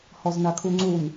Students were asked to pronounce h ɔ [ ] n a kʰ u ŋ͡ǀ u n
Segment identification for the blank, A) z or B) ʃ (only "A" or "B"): A